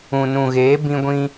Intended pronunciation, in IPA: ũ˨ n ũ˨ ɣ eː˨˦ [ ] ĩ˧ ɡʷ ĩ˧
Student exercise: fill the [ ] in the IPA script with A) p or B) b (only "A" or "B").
B